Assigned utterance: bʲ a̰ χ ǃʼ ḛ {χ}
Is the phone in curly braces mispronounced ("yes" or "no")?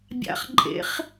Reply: no